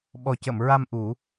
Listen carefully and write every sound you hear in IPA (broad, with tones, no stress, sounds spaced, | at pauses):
ɓ ɔ˨˩ c ə˨˩˨ m ɹ a˧ m ʔ u˨˩˦